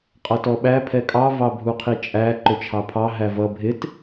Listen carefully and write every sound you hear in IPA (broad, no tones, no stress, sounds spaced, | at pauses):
qʼ ʌ t ɔ ɓ æ pʰ ɛ kʼ ɑ v ɑ bʱ u qʰ i t͡ʃʼ æ ǃ ʊ t͡ʃʰ ɑ pʰ ɑ ɦ æ v ʌ bʱ ɪ t